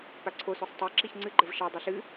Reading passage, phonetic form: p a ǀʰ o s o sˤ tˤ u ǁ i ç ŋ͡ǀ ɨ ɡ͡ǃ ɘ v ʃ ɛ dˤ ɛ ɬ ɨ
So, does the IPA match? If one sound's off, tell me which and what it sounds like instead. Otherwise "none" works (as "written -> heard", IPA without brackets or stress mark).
u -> o